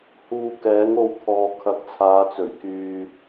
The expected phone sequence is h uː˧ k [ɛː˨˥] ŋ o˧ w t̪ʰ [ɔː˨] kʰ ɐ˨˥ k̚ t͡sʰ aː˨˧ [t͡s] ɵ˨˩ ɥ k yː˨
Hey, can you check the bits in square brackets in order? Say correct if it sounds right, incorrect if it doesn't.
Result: correct, correct, correct

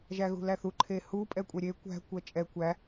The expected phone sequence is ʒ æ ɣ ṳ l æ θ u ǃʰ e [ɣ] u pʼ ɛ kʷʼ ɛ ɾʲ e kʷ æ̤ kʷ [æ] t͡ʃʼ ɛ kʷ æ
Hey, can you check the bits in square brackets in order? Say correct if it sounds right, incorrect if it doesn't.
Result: incorrect, incorrect

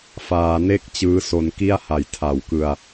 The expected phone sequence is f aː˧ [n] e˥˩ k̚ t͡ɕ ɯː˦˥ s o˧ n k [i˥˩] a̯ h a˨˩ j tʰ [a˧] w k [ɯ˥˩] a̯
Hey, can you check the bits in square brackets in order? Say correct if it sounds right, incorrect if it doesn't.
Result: correct, correct, incorrect, incorrect

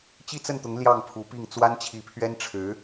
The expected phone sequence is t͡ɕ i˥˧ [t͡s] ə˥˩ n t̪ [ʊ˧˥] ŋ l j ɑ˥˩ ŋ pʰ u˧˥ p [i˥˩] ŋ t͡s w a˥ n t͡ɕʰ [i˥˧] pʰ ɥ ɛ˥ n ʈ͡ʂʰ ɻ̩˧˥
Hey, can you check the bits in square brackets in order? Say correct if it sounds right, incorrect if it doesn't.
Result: correct, correct, correct, incorrect

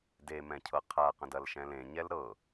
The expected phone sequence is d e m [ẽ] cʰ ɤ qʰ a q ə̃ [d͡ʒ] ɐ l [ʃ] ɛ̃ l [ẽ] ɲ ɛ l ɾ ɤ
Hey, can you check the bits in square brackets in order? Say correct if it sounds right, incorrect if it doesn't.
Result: incorrect, incorrect, correct, correct

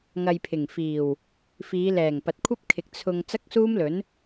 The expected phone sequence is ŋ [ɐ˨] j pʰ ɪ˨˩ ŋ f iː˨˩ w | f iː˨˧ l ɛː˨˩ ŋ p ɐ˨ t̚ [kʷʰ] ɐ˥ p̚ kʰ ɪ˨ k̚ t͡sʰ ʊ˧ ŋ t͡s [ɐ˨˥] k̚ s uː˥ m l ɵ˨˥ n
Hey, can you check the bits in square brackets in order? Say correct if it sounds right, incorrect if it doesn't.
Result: incorrect, correct, incorrect

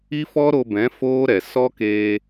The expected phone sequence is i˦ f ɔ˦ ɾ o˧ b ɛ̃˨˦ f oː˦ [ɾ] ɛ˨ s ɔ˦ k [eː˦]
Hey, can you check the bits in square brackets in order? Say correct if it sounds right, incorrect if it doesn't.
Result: correct, incorrect

